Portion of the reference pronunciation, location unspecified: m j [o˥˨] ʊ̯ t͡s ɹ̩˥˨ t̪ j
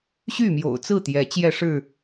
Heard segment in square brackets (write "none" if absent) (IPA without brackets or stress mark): o̰˨˩